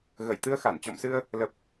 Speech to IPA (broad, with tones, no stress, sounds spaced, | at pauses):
ɣ ə˧˩ j t̪ ɨ˧ ə̯ x a˧˩ n t͡ɕ ɔ̰˧˨ m s ɨ˧ ə̯ | l ə˨˩ p̚